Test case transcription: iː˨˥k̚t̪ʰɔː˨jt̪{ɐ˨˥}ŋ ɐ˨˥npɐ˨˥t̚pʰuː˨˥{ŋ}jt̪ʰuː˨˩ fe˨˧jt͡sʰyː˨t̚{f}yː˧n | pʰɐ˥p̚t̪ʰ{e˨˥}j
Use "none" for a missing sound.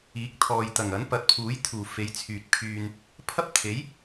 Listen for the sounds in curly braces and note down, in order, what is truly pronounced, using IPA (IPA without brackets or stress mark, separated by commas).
ɐ˨˩, none, pʰ, e˨˥